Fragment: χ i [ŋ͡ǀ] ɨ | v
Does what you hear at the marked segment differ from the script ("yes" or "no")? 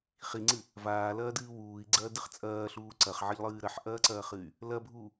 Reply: no